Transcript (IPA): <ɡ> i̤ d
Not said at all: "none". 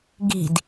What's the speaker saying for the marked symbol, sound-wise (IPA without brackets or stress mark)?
ɡ